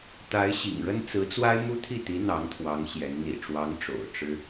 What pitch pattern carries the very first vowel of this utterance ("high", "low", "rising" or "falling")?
rising